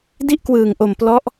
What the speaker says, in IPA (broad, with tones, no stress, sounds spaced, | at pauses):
d i˥˩ ʔ k w ɯː˨˩ ŋ ʔ o˨˩ m p l ɔ˦˥ ʔ